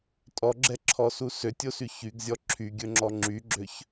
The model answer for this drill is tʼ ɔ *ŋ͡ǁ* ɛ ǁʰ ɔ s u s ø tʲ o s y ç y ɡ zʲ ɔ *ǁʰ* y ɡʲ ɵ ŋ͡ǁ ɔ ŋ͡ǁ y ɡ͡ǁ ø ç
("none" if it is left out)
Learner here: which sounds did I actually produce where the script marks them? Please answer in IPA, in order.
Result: ɡ͡ǁ, ǁʰ

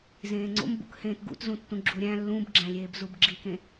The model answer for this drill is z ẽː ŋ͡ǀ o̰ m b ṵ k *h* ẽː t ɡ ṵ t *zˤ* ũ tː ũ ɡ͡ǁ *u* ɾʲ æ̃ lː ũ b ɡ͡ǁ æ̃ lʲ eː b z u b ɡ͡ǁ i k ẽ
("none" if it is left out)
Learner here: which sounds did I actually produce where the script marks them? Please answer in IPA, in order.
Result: h, z, u

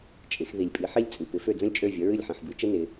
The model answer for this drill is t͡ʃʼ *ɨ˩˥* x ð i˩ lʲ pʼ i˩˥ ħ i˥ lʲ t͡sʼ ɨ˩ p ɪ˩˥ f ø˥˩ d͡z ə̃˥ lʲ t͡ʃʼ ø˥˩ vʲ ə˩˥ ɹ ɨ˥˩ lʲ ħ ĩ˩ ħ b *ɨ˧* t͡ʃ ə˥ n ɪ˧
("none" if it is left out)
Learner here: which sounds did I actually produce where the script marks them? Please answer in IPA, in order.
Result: ɪ˩˥, ɨ˩˥

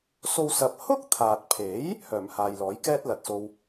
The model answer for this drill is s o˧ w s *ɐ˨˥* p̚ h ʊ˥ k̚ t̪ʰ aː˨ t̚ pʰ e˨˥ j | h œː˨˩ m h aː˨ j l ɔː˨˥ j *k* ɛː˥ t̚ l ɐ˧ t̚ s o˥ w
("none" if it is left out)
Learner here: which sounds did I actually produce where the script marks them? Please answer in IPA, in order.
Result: ɐ˧, k

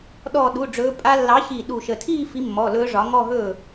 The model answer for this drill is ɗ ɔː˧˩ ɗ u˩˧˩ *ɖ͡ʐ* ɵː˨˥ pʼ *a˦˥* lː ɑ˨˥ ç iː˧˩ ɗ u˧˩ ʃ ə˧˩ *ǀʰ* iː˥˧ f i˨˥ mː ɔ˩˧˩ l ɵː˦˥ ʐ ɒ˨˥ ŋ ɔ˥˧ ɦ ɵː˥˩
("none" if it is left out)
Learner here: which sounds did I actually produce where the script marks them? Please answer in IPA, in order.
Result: ɖ͡ʐ, a˦˥, tʰ

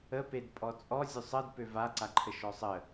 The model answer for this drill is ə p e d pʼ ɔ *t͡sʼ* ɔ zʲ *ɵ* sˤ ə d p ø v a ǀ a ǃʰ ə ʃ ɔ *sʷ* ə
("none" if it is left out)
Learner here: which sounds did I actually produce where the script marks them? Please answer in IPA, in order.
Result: t͡sʼ, ø, sˤ

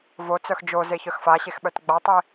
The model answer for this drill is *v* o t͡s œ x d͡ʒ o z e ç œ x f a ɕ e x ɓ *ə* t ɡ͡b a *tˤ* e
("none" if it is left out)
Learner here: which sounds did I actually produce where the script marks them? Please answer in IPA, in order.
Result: v, œ, tˤ

